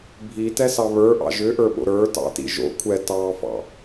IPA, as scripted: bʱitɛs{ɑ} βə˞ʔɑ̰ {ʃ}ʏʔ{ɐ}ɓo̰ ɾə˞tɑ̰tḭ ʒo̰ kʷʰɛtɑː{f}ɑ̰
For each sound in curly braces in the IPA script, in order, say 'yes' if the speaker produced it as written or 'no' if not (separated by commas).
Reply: yes, no, no, yes